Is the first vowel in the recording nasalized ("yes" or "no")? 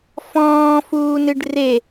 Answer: yes